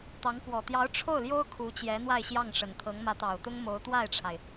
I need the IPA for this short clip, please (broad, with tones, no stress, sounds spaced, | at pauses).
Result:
t̪ ɑ˧˥ ŋ k w ɔ˨˩ t̪ j ɑ˧˥ ʊ̯ ʈ͡ʂʰ o˥˩ ʊ̯ l j o˥ ʊ̯ kʰ u˧˥ t͡ɕ j ɛ˧˥ n̪ w a˥˧ ɪ̯ ɕ j ɑ˥˩ ŋ ʂ ə˨˩ n t̪ʰ ɤ˧˥ ŋ m ä˧˥ t̪ ɑ˨˩ ʊ̯ t̪ ʊ˥ ŋ m o˧˥ ʊ̯ t̪ w a˥˩ ɪ̯ ʈ͡ʂʰ a˩ ɪ̯